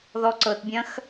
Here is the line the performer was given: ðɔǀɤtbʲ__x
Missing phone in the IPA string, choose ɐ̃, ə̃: ɐ̃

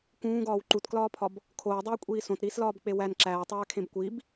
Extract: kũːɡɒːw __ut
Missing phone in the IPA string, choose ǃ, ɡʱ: ǃ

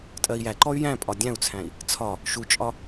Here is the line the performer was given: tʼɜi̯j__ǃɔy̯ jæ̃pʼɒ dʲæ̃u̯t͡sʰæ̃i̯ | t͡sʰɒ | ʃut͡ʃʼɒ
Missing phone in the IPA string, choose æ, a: æ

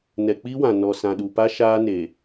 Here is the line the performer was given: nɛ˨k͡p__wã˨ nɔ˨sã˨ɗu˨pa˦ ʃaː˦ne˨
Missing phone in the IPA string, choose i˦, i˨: i˦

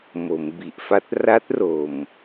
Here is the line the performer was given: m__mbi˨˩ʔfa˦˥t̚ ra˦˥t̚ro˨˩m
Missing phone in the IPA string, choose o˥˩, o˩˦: o˩˦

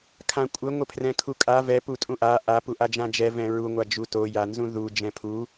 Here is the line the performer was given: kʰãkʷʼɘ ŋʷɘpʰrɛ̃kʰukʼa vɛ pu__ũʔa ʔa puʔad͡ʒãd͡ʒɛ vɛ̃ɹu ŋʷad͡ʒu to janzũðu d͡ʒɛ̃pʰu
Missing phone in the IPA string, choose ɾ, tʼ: tʼ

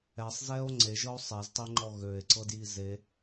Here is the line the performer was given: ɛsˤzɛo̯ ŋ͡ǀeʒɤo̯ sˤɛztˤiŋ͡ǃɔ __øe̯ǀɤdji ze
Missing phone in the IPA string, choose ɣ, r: ɣ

